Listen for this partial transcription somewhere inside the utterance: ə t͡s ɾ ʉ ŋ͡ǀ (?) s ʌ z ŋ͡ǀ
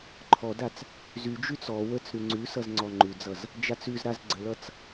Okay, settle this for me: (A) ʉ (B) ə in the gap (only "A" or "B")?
A